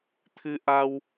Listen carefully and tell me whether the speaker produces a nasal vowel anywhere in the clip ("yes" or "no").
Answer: no